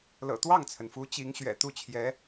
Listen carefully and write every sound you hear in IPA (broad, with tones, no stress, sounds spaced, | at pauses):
l ɤ̰˨˩ t̪ w ɑ˥˩ ŋ t͡sʰ ə˩ n f u˧˥ t͡ɕ i˧˥ ŋ ɕ ɥ ɛ̰˨˩ t̪ u˥˩ t͡ɕʰ j ɛ˧˥